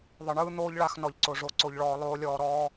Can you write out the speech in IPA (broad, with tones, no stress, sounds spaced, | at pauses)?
ðˤ ɯ˨ ɳ ɯː˦ n̪ oː˦ ʎ ɭ a˧ x n ɔ˨ ʎ ǀ o˨ ʐ o˨˦ ǀ o˧ ʎ ɭ ɔː˧ lˠ oː˦ lʲ ɔː˧ ɾ ɔː˦